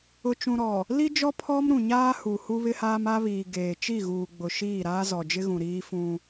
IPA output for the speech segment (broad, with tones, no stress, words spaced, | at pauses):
ʊ˨t͡ʃũ˨ɾɔ˨ | li˦d͡ʒɔ˦ pʰɔ˦m ɾũ˨ɲaː˦hu˨ hu˦βɪ˦haː˦m a˦βiː˨ɡeː˨ t͡ʃi˦˨ɣuː˨ ɡ͡bʊ˨ʃiː˦˨ ɾaː˦zɔ˨d͡ʒɪ˦ɣũ˨ ɾiː˦fũ˦